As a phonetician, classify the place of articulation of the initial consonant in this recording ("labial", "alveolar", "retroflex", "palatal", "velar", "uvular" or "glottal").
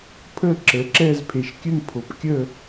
labial